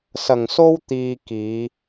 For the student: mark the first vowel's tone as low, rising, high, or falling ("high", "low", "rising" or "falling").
low